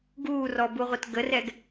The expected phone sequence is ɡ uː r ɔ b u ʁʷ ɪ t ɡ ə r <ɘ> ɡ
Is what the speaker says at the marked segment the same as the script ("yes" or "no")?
no